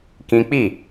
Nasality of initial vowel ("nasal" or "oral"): nasal